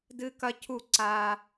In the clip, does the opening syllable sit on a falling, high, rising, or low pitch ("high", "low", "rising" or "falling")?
high